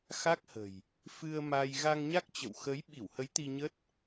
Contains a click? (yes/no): no